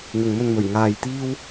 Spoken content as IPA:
n̪ ʊ˨ ŋ m ɵ˧ n m ɵ˨˩ ɥ ŋ aː˧ j t̪ iː˥ w

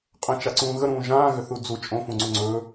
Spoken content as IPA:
qʼ ə̃ t͡ʃ a ǀ ũː ɣ ə ɾ ũː ʒ ãː ɣ ʏ θ u d͡z u t͡ʃʼ õ f ũ ŋ͡ǀ u ŋ͡ǀ ɵː

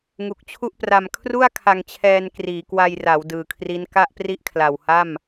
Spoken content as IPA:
ŋ u˨˩ k̚ t͡ɕʰ u˥˩ ʔ p r a˧ m kʰ r u˥˩ a̯ kʰ a˧ ŋ t͡ɕʰ ɛː˧ n k r iː˩˦ k w a˧ j r a˩˦ w d ɯː˨˩ kʰ r i˦˥ n k a˥˩ ʔ p r i˥˩ ʔ kʰ l a˨˩ w h a˥˩ m

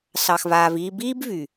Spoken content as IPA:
s ɑ˨ x v aː˨ v iː˧ b iː˦ b v y˨

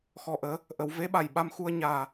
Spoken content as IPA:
x ɔ˨˩ ʔ əː˨˩˦ | ʔ ə˨˩˨ w v e˧˥ ɓ a˨˩ j ɓ a˧ m x u˧ ə̯ ɲ aː˨˩

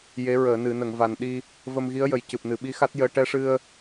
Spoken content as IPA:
j e˧˥ ɹ əː˨˩˨ n ɨ˨˩˨ n ə˨˩˨ ŋ v a˨˩ n ɗ i˧ | v ə˧ m ɣ i˧˥ ə̯ j ə˨˩ j c ɨ˨˩ p̚ n ɨ˨˩˨ ɓ i˧˥ x a˦˥ t̚ j əː˧ ʈ ɛ˧ ʂ ɨ˧ ə̯

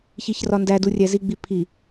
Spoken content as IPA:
ç i ç r ɒ n d æ d u rʲ æ z i ɡ͡b i pʰ i

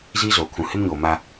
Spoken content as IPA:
z iː˦ z oː˨ kʰ ũ˨ h ɪ˦ m ɲ oː˨ m a˦

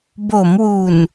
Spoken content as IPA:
b o˩˦ m w u˨˩ n

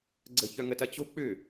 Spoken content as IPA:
ɡ͡ǀ ə̤ ç œ ŋ ə t ɐ t͡ɕ o̤ k͡p ʏ

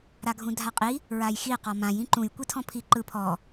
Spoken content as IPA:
ɾ a ɡʱ ũ dʱ a qʼ i | ɹ a j x i q ɔ m ã j ĩ ǃ ũ j kʷ i tʰ ɔ̃ pʰ i ǃ ɯ pʰ ɔ

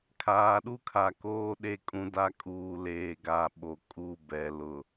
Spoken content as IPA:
kʰ aː˨ ɗ u˦ kʰ a˨ k oː˦ ɗ e˦˨ kʼ ũ˦ d a˦ kʼ uː˨ l eː˨ ɡ a˦˨ ɓ o˨ kʼ u˦˨ b ɛ˨ l ʊ˨

